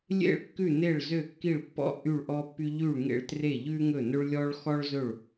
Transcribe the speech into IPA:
lʲ ḛ˥ ɭ kː ʉ˥˩ n e˥˩ ɭ z ø˥˩ kː i˥˩ ɭ pː ɔ̰˥ ʔ y˥˩ ɭ ʔ ɔ˥ pː y˥ ʎ y˥˩ ɭ ŋ ḛ˥˩ ɭ t r e˥˩ ʎ ʉ˥ ŋ ɵ˥˩ n ɵ˥ ɭ lʲ ɔ˥ ɭ x ɔ˥ ɭ z ɵ˥˩ ɭ

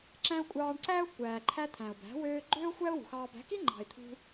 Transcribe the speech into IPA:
ǁ æ̃˦ ʊ̯ kʷʼ ɑː˧ ɳ ǀ æ˦ ʊ̯ kʷ æː˨ ǃʰ æ˦ t̪ʰ æ̃˨ ʊ̯ b æ̤˨˦ w øː˦ ɡ͡ǃ øː˦ ʊ̯ xʷ æ˦ ʊ̯ w ṳ˨ x ɑː˧ b æ̤˨˦ k i˦ ŋ͡ǃ ɑ̤˨ ɪ̯ t̪ʰ ṳ˦

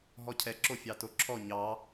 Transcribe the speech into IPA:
ɦ ɔ cʰ ɛ ǁ o fʲ ɑ t o ǁʰ ɔ ɲ ɑ

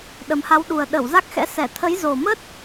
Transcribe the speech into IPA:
ɗ ə˨˩ m h a˨˦ w ɗ u˨˩ ə̯ ɗ ə˧˩ w z a˦˥ k̚ x ɛ̰˧˥ s ɛ˧˩ t̪ʰ ə˨˦ j z o˨˩ m ə˦˥ t̚

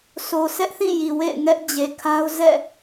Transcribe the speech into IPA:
sʰ o˨ sʰ ɛ˦ ʔ θ ĩ˦˨ j i˨ w ḛ˦˨ ɪ̯ ŋ ɛ˦ ʔ d͡ʑ e˨ kʰ a˦ ʊ̯ z ɛ̰˦˨

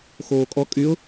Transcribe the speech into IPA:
x oː kʼ ɔ kʼ y ʊ̯

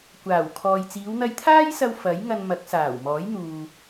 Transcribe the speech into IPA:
kʷ aː˨˩ w kʰ ɔː˨ j t͡s iː˨˧ w n̪ ɐ˧ j t̪ʰ aː˥ j s ɐ˧ w f ɐ˨˥ j ŋ ɐ˧ n m ɐ˨˥ k̚ s aː˨˩ w m ɔː˨˥ j n̪ uː˧

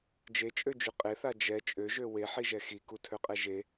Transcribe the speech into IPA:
d͡ʒ e t͡ʃʼ ø d͡ʒ y qʼ e θ a d͡ʒ ɛ t͡ʃʼ ø ʒ ø w e ħ i ʒ ɛ x i k u tʰ ø qʼ ɛ ʒ e

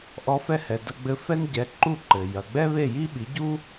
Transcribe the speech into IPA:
ʔ ɔ˧ f ɛ˥˩ h ɛ˩ d ɐ˧ ɡ͡b ɘ˧ f ɛ˥ n ɟ ɛ˩˥ ǃ u˥˩ ǃ ɘ˩ j ɐ˩ ɡ͡b ɛ˥ β e˥˩ j i˥ ɓ i˩˥ ɟ u˥

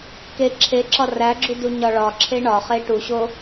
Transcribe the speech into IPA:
k e ǁʰ e ǁ ɒ r æ ɡ͡ǁ u d u ɲ ɒ ɭ ɒ ǁʰ e ɳ ɒ χ e ʈ u ɕ o

